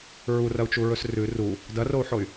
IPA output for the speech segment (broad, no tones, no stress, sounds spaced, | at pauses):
ɹ u r ɐ u̯ t͡ʃ u ɹ ɵ s r ʉ r u | d ɐ r o u̯ ħ o y̯